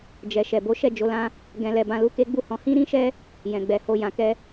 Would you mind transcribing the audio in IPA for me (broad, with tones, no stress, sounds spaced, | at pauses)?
d͡ʒ ɛ˨ ʃ ɛ˨ b o˨˦ ʃ ɛ˦˨ d͡ʒ o˧ l ã˦ | ɡ ɛ̃˧ l ɛ˧ b ã˧ l u˦ k e˦ ɡ͡b u˦˨ h ɔ̃˨˦ h ĩ˦ ɾ ĩ˦ ʃ ɛ˦ | j ɛ̃˨ ɡ͡b ɛ˨ h o˨ j ã˨ k ɛ˧